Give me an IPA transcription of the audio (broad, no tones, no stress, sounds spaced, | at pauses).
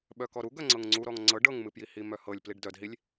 ɓ œ k ɔ ɾ u ɡ œ ŋ͡ǀ ɤ ŋ ŋ͡ǀ u ɾ ɔ ŋ ŋ͡ǀ ɤ ɖ ɤ ŋ m ɨ p j i h i m œ h ɤ lʲ p l i ɖ d œ d ɦ i lʲ